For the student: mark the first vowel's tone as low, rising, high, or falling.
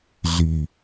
low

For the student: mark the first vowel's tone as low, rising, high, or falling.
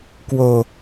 low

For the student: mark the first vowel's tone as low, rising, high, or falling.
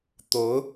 rising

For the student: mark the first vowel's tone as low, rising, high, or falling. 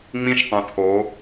high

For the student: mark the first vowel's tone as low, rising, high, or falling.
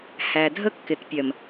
low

